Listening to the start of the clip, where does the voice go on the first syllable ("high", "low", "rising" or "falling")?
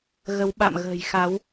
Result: rising